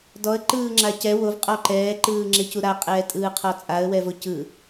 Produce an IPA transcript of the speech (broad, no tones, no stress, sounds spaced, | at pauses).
d ɔ ə̯ ǃ ɯː ŋ͡ǁ a c ɛ w o v qʼ ɔ ǃ ɛː ǃ ɯː ŋ͡ǁ e c u ɾ a qʼ ɛː tʼ ɯː qʰ ɔ t͡sʼ a ə̯ w ɛ v o c ɯ